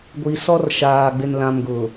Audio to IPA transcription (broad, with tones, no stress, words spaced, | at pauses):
ɡʷi˨sɔ˦rʃaː˨ ɡ͡bɪ˨nlã˨mɡʊ˨